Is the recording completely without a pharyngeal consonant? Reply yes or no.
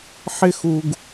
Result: no